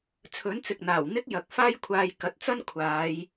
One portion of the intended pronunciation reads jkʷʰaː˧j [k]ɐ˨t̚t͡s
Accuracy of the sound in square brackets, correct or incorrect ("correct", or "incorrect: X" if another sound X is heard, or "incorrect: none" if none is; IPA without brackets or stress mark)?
correct